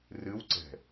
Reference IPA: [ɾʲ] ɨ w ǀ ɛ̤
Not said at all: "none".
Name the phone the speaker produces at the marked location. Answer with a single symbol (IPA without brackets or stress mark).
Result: r